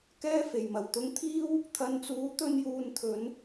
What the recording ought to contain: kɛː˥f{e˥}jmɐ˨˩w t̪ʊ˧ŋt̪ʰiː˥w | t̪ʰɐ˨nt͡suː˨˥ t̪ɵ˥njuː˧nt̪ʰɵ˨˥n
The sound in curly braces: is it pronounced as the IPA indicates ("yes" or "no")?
no